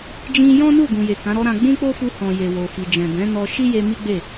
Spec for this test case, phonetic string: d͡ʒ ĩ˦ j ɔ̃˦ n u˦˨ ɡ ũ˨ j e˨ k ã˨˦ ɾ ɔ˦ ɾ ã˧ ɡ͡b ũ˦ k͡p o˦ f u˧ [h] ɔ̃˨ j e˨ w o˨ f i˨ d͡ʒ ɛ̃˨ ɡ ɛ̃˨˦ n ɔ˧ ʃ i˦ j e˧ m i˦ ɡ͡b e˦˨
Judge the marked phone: correct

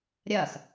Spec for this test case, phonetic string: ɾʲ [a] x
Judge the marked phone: incorrect: ɐ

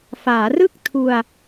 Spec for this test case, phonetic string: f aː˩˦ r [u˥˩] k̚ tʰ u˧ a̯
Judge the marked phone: incorrect: ɯ˥˩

